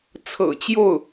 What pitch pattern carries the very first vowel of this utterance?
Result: low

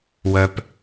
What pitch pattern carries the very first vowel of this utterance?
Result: low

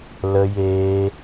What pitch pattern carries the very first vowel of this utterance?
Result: high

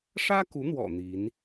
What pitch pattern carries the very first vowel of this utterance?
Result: high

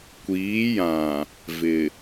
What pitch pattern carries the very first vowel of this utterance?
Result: rising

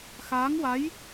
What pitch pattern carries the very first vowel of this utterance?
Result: rising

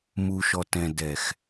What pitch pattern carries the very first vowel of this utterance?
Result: low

